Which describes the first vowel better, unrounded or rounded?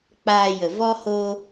unrounded